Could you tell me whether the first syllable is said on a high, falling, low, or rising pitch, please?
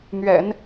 low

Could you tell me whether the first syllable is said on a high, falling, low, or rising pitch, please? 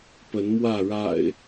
rising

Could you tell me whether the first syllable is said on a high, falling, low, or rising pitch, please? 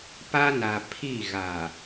high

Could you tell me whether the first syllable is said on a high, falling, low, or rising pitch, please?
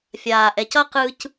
low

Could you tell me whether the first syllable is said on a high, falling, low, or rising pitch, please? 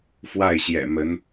falling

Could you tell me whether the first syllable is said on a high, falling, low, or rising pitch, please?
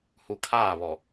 low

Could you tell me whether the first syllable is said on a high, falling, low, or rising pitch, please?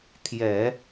low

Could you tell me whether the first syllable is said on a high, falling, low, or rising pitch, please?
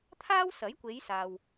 high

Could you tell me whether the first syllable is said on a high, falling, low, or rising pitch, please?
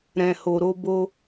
low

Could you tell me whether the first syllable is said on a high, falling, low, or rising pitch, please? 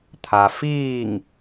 low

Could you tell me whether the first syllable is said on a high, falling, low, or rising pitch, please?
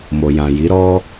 low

